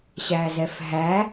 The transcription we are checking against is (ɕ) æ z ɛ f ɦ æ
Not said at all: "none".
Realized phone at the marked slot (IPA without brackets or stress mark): ɕ